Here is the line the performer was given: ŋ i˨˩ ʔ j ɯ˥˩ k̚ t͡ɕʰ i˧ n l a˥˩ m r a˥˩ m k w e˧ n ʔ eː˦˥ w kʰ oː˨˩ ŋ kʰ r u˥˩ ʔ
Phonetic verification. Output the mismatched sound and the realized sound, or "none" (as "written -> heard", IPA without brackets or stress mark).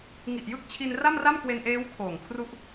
l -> r